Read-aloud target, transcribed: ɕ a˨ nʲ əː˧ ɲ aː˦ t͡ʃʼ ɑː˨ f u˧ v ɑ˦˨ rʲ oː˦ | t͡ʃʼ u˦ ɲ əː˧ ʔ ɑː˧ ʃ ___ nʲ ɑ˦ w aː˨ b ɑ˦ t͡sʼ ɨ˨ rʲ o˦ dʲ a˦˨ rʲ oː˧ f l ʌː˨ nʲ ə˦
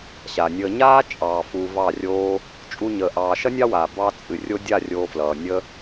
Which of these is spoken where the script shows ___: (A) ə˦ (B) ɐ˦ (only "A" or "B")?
B